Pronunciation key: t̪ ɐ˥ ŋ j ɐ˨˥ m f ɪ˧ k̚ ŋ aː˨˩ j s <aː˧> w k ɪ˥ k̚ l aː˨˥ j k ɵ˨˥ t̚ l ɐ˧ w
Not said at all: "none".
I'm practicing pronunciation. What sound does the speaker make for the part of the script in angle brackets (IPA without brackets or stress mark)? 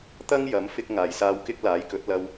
aː˧